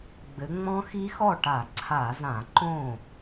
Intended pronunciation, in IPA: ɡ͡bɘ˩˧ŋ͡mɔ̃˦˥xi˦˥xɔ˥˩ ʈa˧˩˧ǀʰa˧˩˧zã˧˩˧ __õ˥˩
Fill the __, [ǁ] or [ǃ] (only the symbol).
ǃ